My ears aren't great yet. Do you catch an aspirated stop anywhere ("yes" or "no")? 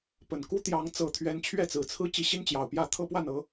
yes